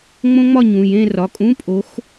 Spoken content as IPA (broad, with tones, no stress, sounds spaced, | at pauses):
ŋ͡m õ˦˥ ŋ͡m ɒ˥˨ ɲ ũ˩˧˩ j ẽ˥˨ r ɒ˩˧˩ kʼ ũ˧˥˧ pʼ o˨˦ x